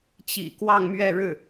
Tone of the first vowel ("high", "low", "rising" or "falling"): low